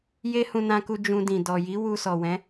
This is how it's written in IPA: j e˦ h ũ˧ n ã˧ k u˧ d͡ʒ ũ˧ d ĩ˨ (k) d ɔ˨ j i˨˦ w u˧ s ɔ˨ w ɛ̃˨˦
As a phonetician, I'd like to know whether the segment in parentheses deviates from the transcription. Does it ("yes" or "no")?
yes